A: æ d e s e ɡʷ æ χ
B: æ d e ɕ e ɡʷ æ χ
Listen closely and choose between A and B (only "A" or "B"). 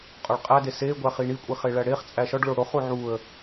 A